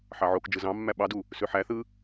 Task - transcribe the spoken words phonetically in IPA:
ħɑʕokd͡ʒɯ zɑ̃mːæ ɓɑdu | søħæθɯ

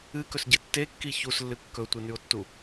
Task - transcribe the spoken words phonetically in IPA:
ɨkɵsɟɨ tːekːi çuslːɨ kːɵtʷɨnʉo̯tːu

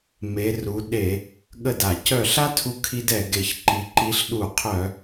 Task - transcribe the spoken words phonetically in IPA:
me˨˦ru˨˦ ɗe˧˩˧ | ɠə˧˩da˧˩˧cœ˧˩ɬa˥ tʰu˥kʰi˥d ɛ˧˩˧ɡe˧˩˧çǃi˨˦ ǃi˨˦ɬɗu˧˩˧qʰœ˧˩˧

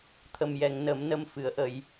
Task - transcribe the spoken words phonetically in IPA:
t̪ʰə˨˩mjɛ˨˩˨ŋ nə˨˩˦mnə˧˥m fɨ˨˩˦ə̯ʔə˨˩˦j

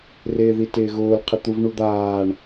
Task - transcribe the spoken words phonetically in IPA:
rɪːðitɪːɣʊːl qʰɪt̪uvɳud̪aːɳ

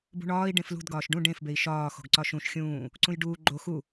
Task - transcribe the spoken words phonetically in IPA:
bṳɳɒːi̯ ɖẽflṳd ɡɒːʃɖũ ɖẽf bei̯ʃɒː xo̤ɡǀɒʃũʃ xʲũː | ǀũjɖuː ɡ͡ǃo xu

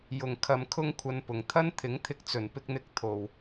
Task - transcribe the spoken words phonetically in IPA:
jʊ˨˩ŋkʰɐ˨˧m kʰʊ˥ŋkʷʰɐ˧npʊ˨˩ŋ t̪ʰɐ˥nt̪ʰɪ˨˥ŋt̪ʰɪ˧k̚t͡sɵ˨˩n pɪ˧k̚n̪ɪ˨˥k̚ t̪ʰo˨w

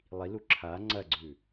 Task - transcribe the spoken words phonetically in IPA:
lˠilu ǁʰa ŋ͡ǀɐɡ͡ǀʉ

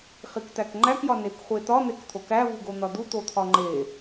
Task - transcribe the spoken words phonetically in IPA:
χikt̪ækŋ͡ǃæk jɒnekχʷet̪ɒ n̪ekt̪ʰokæ vuɡon̪ɒd̪u t̪ot̪ʰɒŋ͡ǃe

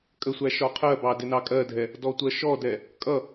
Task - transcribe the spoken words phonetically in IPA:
kʼəsʷæ ʃɒqʰɜbɑ dɪnɑkʼɜdʱɛ | dɔtʷɜʃɔdɛ | kʼʌ

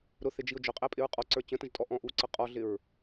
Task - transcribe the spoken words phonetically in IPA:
ɾʊθɪd͡ʒiʊ̯ d͡ʒʊqʼæpʼɪɹ qʼɔǀə˞ t͡ɕə̃tə̃ʒtʼɔ ʔɔ̃ʔuǀʌ qʼɔɮɪɹ

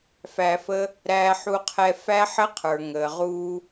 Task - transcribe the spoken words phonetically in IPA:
fæ˧fə˦ | ɾæː˧ħu˧qʰɛ˧ fæ˦ħə˦qʰə˞˨ ŋəː˨ʁuː˧

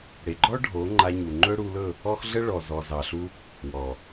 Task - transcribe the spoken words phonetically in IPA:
ɽe˨ɡ͡ǃɔ˦ ɖʱo˨˦ŋ͡ǃa˧ɲu˨ ŋ͡ǃɵ˦ɽu˧lɵ˦˨ | ɔ˦xɮə˦ ɭɔ˨zɔ˨zɑ˨ɬu˧ | wɔ˨

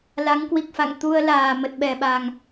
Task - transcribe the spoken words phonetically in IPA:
la˨˦ŋkwi˨˩k̚fa̰˧˨ŋ t̪u˧ə̯laː˨˩ mə˨˩t̚ɓɛ˨˩ɓa˨˩ŋ

